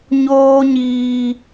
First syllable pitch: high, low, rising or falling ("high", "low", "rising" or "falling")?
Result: high